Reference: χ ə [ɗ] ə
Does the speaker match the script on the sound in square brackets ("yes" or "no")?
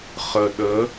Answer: yes